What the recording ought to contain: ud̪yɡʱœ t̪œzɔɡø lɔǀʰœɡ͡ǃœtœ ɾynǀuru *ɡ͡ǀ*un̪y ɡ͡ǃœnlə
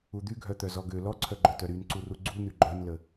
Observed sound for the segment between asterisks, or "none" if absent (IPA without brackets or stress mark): ɡ͡ǀ